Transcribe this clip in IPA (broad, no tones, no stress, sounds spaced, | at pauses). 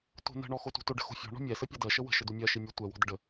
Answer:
t o̤ n ə̤ ɳ ɔ x o t ṳ t o ɖ ə̤ x o̤ fʲ ɔ̤ ɳ ɔ̤ mʲ ɛ s ə pʲ ɛ d ɜ ʃ ə w ə̤ ʃ ɘ d u mʲ ɜ ʃ i mʲ ɘ tʷ ɛ w ɔ̤ d ə ɖ ə